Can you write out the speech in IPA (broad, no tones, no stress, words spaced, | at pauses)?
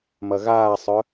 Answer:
mɐɣaːsˤœ